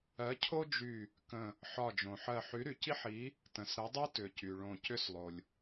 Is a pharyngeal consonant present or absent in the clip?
present